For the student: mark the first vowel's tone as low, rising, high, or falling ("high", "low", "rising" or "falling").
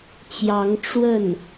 rising